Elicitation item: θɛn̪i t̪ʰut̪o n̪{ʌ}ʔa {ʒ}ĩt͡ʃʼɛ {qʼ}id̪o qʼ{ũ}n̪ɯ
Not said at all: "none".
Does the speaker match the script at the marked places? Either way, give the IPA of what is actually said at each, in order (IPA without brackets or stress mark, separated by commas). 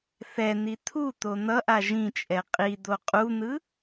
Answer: ʌ, ʒ, qʼ, u